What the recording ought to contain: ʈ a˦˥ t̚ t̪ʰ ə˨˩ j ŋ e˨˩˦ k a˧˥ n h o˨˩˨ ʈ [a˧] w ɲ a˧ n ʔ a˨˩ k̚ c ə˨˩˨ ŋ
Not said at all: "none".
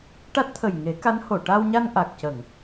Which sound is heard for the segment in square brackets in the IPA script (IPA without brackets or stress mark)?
a˧